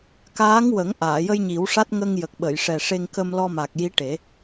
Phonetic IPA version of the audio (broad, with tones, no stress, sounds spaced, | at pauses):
k aː˧˥ ŋ w ə˨˩˦ ŋ ʔ aː˨˩˨ j ə˧ j ɲ i˨˩˦ w ʂ a˦˥ t̚ ŋ ə˧ ŋ j ə˨˩ k̚ ɓ ə˨˩˨ j ʂ ɛ˨˩ ʂ e˧ ŋ k ə˧ m l ɔ˧ m a˨˩ k̚ j i˧˥ ʈ e˨˩˦